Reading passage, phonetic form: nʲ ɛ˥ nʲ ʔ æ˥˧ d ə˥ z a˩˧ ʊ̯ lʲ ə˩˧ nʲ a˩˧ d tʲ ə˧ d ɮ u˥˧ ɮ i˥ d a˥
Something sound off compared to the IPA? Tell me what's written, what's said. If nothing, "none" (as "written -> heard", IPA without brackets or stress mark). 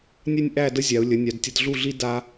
z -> zʲ